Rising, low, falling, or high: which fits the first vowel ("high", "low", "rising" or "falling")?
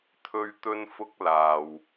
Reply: high